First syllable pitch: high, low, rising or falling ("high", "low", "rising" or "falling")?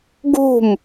falling